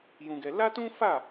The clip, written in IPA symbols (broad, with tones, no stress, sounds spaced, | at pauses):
j ũ˦ ɡ ɛ˦ l a˦ t ũ˦ f a˦˨